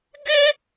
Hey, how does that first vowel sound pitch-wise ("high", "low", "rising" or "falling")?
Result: high